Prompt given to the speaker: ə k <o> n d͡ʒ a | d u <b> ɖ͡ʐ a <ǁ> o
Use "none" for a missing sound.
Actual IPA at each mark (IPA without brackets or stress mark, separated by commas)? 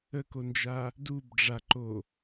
o, b, ǃ